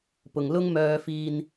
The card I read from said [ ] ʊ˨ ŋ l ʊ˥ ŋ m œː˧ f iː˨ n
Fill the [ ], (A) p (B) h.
A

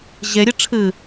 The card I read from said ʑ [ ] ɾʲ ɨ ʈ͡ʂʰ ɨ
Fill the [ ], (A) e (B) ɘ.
A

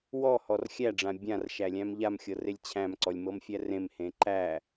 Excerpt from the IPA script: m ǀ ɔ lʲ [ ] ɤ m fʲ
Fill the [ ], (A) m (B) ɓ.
A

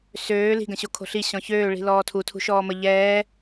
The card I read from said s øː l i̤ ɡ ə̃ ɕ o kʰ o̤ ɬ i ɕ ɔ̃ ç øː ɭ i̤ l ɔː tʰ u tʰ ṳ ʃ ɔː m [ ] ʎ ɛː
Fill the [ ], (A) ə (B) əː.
A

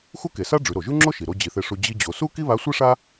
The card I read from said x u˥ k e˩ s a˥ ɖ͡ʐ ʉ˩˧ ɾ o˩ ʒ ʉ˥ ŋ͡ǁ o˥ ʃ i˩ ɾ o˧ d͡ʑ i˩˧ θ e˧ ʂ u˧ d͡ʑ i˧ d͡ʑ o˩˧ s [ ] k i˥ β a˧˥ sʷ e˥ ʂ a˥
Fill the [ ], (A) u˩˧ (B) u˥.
B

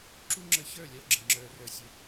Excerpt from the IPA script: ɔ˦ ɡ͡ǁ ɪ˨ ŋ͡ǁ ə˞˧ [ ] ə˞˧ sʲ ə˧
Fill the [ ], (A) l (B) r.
B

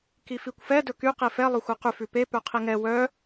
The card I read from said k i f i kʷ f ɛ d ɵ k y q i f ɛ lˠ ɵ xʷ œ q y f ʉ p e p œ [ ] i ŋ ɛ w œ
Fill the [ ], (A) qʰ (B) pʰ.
A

